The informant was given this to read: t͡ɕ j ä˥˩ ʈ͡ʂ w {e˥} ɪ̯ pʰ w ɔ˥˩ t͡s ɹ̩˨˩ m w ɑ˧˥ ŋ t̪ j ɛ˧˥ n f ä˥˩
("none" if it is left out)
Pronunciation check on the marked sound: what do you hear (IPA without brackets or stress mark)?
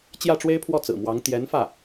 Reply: e˥